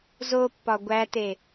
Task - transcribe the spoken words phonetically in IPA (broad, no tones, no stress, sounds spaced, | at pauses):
z o pː ɒ ɡʷ æ t e